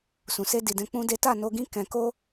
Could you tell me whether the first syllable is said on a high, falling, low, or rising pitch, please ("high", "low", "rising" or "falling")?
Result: low